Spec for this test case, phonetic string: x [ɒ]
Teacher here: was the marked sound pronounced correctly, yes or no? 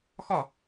yes